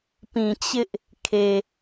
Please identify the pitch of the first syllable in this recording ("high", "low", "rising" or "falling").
low